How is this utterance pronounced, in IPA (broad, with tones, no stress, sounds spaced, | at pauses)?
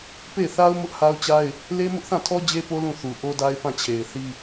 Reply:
p e˦˨ ɪ̯ θ a˦ ʊ̯ m ʊ˦ ʔ h a˦ ʊ̯ t͡ɕ a˦ ɪ̯ | l e˦ m ʊ˦ ʔ θ ã˦˨ tʰ ɔ˦ d͡ʑ e˦ p o˦ l ũ˦˨ θ u˨ ʔ o˦ d a˦ ɪ̯ p ã˦˨ t͡ɕʰ e˨ ɪ̯ θ i˦